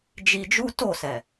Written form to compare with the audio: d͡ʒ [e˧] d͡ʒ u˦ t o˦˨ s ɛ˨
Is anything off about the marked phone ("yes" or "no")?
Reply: yes